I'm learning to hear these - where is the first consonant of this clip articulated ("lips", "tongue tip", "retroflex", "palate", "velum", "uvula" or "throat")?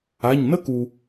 palate